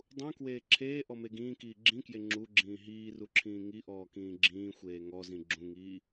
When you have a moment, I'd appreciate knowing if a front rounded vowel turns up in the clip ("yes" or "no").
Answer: no